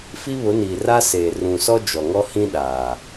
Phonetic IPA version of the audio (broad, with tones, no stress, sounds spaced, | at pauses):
f i˦ β ʊ˨˦ n iː˨ r a˦ s eː˨ r ũ˨ s ɔ˦ d͡ʒ ɔ˨ ŋ ɔ˦ h ĩ˦ ɗ aː˨